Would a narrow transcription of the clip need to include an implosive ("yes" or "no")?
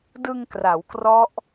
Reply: no